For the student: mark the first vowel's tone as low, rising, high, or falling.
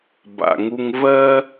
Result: low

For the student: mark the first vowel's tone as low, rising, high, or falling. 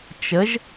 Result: rising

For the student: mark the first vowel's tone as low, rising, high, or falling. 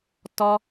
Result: high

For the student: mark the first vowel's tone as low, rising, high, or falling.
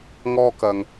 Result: high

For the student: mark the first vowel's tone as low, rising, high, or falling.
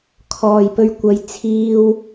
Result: low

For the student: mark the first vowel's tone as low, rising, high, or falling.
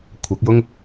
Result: rising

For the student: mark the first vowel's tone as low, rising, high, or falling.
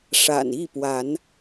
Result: low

